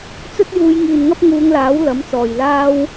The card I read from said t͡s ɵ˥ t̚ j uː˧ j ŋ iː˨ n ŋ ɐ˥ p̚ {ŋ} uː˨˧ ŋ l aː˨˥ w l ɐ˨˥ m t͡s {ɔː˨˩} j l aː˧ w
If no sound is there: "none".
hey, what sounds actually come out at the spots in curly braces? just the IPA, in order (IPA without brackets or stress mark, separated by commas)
ŋ, ɔː˨˩